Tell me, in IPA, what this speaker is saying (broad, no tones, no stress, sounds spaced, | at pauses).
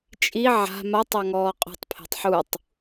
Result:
t͡ʃʼ i ʕ a̤ m a tˤ a ŋ ɔː qʼ o̤ tˤ pʰ e̤ tˤ ħ u tˤ